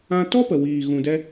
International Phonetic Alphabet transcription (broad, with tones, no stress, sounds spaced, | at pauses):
ã˦ t ɔ˦ p ə˨ w iː˨ ɣ ũ˧ d ɛ˦